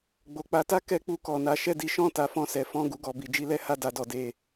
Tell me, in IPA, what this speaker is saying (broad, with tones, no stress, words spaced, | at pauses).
ɡ͡bo˨k͡pa˨˦ta˦ kɛ˦k͡pu˦˨kɔ˨na˨˦ ʃɛ˦˨di˨˦ʃɔ̃˦˨ ta˨˦fɔ̃˦˨sɛ˨˦ fɔ̃˦˨ ɡu˧ɡɔ˨bi˧ d͡ʒi˧lɛ˦ha˦˨ da˧dɔ˨ de˨